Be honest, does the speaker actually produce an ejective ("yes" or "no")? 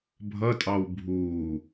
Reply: yes